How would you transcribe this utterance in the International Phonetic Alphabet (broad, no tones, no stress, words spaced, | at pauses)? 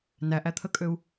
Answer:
næʔæt̪ʰəkʼøu̯